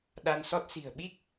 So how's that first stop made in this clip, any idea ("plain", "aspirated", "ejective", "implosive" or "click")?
implosive